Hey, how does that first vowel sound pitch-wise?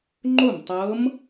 falling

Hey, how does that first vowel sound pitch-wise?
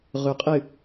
low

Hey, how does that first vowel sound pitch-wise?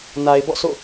low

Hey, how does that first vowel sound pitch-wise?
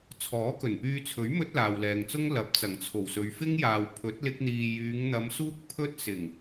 rising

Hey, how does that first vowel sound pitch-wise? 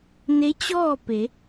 rising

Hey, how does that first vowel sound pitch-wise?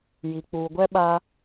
low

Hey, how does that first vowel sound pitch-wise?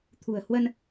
low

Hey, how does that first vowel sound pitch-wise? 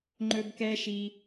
high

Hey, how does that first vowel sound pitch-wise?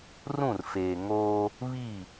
falling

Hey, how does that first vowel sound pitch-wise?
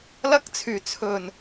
high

